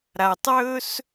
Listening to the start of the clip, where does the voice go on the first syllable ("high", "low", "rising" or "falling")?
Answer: low